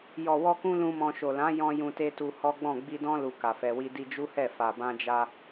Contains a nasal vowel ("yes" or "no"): yes